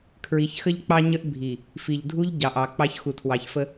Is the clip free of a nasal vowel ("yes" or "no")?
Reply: yes